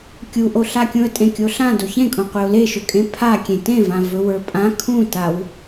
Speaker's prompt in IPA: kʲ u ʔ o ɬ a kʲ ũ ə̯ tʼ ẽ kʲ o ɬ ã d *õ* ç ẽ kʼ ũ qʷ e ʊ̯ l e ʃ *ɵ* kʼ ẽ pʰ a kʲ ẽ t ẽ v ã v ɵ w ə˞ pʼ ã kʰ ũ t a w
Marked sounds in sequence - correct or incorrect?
incorrect, correct

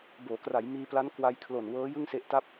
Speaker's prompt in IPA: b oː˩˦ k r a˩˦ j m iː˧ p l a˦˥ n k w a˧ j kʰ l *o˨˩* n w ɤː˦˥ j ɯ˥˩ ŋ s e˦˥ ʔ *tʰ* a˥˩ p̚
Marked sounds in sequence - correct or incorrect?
correct, incorrect

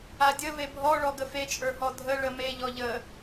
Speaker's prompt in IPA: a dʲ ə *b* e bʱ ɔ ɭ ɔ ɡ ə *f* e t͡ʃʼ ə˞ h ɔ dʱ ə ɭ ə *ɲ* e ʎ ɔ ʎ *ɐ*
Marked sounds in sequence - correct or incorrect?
incorrect, correct, incorrect, incorrect

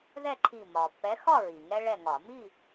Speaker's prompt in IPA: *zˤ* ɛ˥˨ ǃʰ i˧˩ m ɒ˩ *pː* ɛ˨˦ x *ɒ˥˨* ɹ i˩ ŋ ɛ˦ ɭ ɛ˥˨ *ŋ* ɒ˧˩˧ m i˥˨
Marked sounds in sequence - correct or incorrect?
incorrect, correct, correct, correct

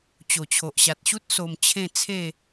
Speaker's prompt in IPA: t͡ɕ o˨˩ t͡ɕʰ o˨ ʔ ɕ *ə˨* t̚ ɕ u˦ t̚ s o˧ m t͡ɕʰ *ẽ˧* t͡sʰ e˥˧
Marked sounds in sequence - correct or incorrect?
incorrect, incorrect

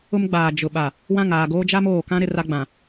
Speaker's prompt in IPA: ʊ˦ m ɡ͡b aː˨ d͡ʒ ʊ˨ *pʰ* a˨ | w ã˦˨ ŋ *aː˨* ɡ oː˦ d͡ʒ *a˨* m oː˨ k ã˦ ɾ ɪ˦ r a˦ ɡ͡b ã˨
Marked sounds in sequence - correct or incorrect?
incorrect, correct, incorrect

